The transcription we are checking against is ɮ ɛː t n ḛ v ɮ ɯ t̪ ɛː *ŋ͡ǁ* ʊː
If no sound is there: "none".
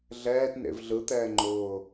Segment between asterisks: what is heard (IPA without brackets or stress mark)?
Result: ŋ͡ǃ